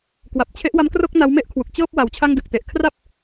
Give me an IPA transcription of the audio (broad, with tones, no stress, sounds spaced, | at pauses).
k w a˨˩ p̚ t͡ɕʰ e˦˥ ʔ w a˦˥ m k r o˥˩ k̚ n a˦˥ w m e˥˩ ʔ kʰ w u˨˩ k̚ t͡ɕ ɤː˥˩ p̚ w a˩˦ w t͡ɕʰ a˥˩ ŋ d ɯ˨˩ k̚ t e˨˩ ʔ kʰ r a˥˩ p̚